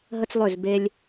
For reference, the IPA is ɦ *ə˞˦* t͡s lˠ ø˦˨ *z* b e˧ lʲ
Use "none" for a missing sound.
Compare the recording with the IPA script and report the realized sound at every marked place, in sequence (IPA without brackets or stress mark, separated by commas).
ə˦, z